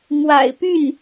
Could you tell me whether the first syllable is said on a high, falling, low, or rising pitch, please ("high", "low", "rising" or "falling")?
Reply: low